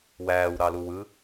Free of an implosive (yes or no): yes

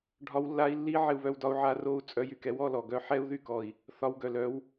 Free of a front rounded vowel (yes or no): no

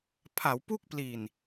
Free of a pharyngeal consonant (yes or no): yes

